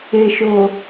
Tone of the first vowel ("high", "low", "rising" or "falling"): low